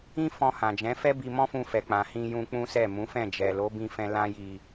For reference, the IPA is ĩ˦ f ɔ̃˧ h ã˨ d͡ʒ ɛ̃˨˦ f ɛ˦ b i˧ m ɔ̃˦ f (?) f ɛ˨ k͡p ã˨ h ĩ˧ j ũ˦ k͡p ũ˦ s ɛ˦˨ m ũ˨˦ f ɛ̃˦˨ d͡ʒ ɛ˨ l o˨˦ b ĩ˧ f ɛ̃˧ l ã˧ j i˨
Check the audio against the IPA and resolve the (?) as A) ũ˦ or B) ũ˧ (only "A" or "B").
B